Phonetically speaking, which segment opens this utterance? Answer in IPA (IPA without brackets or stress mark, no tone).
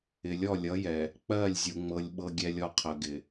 ɪ